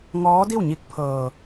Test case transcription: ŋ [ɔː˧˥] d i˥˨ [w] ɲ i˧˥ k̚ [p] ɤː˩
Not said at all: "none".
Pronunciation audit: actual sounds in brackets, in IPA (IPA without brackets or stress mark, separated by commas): ɔː˧˥, w, pʰ